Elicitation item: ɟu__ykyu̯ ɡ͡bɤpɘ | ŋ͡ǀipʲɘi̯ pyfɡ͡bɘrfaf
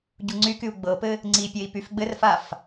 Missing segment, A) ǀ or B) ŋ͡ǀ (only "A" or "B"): B